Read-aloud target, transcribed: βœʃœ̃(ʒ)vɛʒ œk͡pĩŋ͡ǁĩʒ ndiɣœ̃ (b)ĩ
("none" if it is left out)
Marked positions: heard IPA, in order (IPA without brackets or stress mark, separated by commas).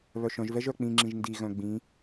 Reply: ʒ, ɡ͡b